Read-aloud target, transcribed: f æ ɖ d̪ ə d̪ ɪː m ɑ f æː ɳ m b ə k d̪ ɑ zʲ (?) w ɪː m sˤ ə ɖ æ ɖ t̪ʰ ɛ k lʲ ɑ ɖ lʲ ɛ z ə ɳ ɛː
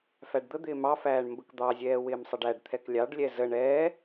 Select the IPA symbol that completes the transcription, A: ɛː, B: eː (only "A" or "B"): A